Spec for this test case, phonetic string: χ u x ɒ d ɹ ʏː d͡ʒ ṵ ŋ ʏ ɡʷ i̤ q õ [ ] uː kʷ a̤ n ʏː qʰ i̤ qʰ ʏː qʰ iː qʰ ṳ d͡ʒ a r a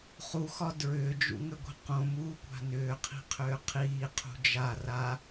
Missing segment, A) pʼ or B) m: B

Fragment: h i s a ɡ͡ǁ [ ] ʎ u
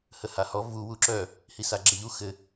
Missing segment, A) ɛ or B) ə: A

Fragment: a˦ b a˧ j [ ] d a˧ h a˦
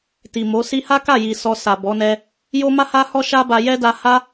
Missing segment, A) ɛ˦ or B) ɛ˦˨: A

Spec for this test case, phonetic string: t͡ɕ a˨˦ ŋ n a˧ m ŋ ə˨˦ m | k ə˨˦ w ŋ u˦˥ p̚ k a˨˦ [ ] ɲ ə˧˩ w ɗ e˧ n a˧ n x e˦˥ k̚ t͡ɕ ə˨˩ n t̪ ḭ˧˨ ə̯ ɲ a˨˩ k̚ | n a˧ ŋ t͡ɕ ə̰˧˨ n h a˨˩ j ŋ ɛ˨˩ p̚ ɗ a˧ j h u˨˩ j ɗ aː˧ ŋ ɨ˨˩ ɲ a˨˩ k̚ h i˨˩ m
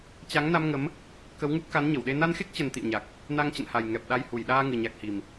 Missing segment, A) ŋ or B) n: B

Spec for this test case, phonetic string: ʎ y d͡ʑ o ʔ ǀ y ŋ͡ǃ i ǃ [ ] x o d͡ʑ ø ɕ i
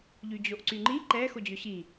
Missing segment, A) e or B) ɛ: B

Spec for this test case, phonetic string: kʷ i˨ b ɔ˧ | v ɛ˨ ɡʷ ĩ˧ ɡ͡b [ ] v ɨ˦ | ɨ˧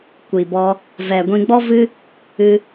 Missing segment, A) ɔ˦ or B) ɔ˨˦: A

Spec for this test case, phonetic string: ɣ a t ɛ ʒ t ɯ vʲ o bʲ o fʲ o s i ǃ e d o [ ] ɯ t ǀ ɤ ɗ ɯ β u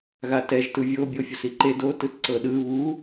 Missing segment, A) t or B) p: A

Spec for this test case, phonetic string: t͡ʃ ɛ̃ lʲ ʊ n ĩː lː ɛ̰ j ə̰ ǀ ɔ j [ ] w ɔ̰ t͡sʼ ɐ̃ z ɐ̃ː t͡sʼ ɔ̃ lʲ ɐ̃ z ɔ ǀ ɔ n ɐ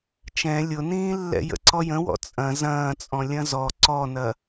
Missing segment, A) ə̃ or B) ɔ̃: A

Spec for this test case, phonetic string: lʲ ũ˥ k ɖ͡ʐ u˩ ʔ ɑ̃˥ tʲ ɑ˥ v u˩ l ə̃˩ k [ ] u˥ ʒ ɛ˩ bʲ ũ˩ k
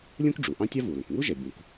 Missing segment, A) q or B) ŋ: B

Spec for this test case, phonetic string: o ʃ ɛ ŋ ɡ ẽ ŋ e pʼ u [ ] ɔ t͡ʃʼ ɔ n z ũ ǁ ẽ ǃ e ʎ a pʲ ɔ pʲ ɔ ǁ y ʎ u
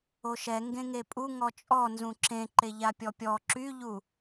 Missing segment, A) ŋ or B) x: A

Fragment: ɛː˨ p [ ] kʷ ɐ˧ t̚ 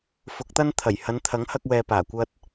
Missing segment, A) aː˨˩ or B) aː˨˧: A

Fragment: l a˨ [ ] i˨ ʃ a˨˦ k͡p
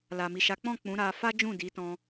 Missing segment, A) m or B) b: A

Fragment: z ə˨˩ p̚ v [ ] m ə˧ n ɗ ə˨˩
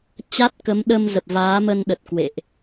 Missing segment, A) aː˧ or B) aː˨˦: B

